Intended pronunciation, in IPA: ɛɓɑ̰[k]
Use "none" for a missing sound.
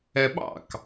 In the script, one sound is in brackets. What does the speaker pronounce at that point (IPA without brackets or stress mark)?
k